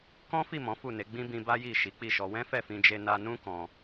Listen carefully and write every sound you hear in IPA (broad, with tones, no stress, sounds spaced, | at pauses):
k ɔ̃˦ f i˦˨ m ɔ̃˨˦ f u˦˨ n e˨˦ ɡ͡b ĩ˦ b ĩ˧ b a˦ j i˦˨ ʃ i˨˦ k͡p i˦˨ ʃ ɔ˧ w ɛ̃˦ f ɛ˦˨ f ĩ˧ d͡ʒ e˧ n a˧ n ũ˦ k ɔ̃˧